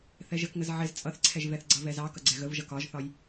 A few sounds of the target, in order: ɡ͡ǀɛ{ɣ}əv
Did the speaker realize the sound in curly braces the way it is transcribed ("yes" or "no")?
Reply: yes